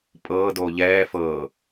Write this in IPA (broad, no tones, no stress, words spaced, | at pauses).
pʼɤː doːʎɛː fɤː